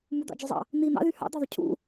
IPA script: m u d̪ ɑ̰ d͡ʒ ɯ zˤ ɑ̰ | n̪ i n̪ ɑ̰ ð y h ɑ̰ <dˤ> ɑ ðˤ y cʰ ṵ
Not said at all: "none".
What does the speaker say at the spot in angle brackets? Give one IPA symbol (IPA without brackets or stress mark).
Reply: d̪